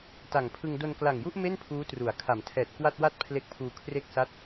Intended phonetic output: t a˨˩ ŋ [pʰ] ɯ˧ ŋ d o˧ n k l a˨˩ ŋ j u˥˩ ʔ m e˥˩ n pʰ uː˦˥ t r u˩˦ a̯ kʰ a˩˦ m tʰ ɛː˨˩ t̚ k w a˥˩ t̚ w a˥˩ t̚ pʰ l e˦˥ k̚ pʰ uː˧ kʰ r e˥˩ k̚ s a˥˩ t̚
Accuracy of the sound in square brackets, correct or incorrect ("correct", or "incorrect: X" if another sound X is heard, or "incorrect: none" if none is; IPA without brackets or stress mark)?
correct